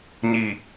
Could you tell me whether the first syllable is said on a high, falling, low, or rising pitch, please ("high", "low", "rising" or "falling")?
low